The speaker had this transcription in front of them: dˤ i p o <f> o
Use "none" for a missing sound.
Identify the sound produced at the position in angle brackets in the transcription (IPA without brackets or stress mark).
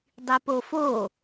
f